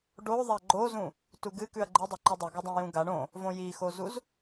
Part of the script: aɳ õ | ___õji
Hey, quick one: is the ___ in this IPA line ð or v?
v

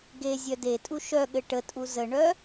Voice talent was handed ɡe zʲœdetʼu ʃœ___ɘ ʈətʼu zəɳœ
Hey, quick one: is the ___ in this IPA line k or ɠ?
ɠ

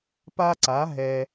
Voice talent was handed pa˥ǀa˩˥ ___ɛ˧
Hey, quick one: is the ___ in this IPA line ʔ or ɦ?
ɦ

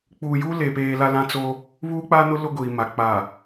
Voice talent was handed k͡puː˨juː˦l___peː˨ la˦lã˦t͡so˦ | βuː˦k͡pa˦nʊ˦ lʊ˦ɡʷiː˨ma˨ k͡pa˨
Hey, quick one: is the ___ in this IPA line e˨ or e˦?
e˨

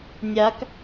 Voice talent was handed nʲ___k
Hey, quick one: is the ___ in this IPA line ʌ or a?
a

